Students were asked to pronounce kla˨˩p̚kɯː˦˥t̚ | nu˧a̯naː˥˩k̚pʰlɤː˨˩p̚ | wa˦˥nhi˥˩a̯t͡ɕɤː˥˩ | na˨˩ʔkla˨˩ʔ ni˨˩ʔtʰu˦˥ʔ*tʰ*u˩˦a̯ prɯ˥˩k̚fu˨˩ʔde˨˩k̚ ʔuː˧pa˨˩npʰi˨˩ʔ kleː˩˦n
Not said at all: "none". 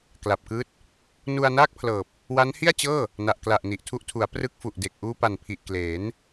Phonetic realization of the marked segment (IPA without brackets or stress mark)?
tʰ